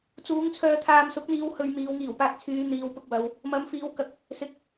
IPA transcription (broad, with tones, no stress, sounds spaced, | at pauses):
t͡s uː˨˥ ŋ t͡sʰ œː˧ t̪ʰ aː˧ m s ʊ˨˥ k̚ n̪ iː˨˧ w h ɵ˧ ɥ m iː˨˧ w ŋ iː˨˩ w p aː˧ k̚ t͡sʰ yː˨˧ n̪ iː˨˧ w p ʊ˧ k̚ w ɐ˨˧ w | m ɐ˨˧ m f iː˨˧ w k ɐ˨ k̚ | s ɪ˨ k̚